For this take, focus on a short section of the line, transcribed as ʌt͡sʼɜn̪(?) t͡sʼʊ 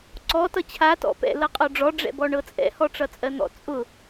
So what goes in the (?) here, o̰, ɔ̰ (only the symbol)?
ɔ̰